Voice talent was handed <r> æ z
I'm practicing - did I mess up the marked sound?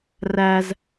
no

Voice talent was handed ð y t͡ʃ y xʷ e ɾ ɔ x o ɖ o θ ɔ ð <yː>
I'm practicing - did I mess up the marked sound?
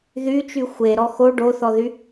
yes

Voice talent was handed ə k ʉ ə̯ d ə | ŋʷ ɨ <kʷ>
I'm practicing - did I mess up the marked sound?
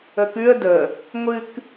yes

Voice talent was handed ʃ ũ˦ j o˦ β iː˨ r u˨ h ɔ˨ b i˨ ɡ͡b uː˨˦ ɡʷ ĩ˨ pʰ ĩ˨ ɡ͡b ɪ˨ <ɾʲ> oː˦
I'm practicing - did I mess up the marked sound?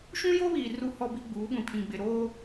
yes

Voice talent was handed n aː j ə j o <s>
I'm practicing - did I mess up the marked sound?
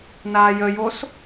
no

